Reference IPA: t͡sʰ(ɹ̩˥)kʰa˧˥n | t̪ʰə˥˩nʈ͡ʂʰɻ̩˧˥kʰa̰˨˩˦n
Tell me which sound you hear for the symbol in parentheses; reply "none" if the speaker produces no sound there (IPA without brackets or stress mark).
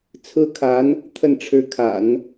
ɹ̩˥